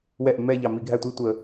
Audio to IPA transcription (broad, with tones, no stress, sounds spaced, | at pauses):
w ɛ˥˩ ʔ mː ɛ˥˧ ʎ ɑ˨˩ m i˧˩˧ ɡʱ æ˥˩ tʷ i˥˩ tʷ ə˧˩˧